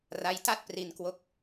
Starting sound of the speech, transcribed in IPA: r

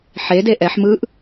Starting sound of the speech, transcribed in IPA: ħ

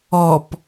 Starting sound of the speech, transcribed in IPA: ɔ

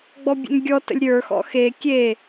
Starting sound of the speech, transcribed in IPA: ɡ͡b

